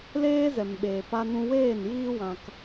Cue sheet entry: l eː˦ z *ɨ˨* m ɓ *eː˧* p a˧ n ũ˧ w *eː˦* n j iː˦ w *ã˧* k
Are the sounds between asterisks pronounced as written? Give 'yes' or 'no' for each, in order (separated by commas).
no, no, no, yes